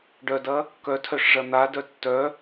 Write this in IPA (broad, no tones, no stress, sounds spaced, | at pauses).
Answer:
ɖ œ d ɐ | k œ tʰ œ ʂ ʐ ɐ n̪ a d œ tː œ